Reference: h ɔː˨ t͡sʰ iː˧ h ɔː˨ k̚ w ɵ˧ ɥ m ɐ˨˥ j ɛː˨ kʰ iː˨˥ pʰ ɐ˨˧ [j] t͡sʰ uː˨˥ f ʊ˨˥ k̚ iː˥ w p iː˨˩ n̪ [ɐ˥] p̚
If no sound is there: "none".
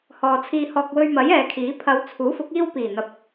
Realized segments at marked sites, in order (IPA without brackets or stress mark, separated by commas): w, ɐ˨˥